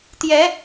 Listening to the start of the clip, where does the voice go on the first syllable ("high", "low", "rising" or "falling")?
rising